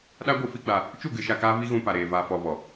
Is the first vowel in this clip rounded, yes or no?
no